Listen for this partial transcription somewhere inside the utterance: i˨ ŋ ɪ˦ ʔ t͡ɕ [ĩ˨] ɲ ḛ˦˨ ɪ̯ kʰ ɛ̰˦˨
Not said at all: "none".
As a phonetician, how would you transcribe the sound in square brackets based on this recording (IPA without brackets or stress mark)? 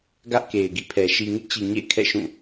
i˨